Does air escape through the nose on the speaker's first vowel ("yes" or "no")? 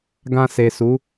yes